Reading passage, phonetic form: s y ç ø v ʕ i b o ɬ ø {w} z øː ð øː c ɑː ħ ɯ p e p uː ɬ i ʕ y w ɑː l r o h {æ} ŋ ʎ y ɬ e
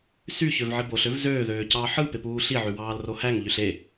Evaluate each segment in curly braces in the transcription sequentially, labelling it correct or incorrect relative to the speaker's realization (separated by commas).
incorrect, correct